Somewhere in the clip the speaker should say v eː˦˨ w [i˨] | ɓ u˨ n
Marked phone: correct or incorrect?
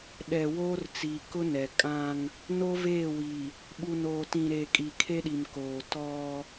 correct